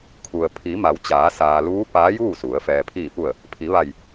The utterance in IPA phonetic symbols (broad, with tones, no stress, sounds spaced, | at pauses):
kʰ u˩ ə̯ pʰ i˩˧ m a˩˧ w t͡ɕ aː˩˧ s aː˩ l uː˧˥ p aː˧˥ j uː˥˨ s u˩˧ ə̯ f ɛː˩ pʰ iː˧˩ p u˧˩ ə̯ | pʰ i˩˧ ʋ a˧˩ j